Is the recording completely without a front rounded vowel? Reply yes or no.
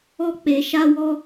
yes